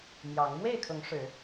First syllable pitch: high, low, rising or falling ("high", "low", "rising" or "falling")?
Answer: rising